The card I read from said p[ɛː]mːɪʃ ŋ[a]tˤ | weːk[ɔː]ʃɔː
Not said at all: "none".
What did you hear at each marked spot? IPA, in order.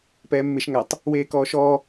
ɛː, a, ɔː

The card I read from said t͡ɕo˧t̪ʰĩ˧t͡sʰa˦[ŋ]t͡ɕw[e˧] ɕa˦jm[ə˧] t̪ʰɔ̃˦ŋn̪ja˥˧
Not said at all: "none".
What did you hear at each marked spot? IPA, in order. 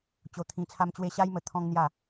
m, e˦, ə˧

